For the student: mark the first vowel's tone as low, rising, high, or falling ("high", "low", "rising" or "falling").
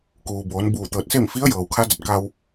low